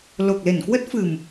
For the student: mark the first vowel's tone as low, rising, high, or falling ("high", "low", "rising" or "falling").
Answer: low